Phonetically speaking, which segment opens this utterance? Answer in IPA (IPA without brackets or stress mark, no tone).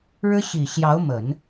ɻ